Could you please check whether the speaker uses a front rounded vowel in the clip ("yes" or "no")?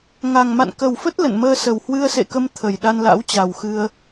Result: no